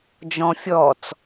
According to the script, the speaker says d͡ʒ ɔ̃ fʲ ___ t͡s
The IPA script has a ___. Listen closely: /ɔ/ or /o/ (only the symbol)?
ɔ